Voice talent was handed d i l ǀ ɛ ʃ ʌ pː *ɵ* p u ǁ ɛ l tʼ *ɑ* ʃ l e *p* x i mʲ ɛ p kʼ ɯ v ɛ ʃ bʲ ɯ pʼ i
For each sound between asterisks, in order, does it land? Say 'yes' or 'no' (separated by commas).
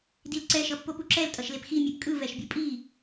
no, no, yes